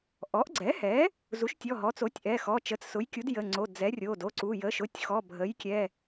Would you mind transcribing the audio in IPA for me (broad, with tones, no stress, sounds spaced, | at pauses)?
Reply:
ʔ ɔ˩˥ ʔ ɡ͡ǀ ɛ˩˥ h ɛ˩˥ | z u˩˥ ʃ tʲ ɔ˩˧˩ ɦ ɔ˩˥ t͡s o˩˥ tʲ ʔ ɛ˩˧˩ x ɔ˩˧˩ t͡ʃ ə˩˥ t͡s s ʊ˩˥ j kʲ u˩˥ d j ə˩˧˩ ŋ͡ǀ o˩˧˩ d͡z ɛ˩˥ rʲ o˩˧˩ d o˩˧˩ ǀ u˩˧˩ j ə˩˧˩ ʃ ʊ˩˧˩ tʲ x ɔ˩˧˩ bʱ ə˩˥ j kʲ ɛ˩˧˩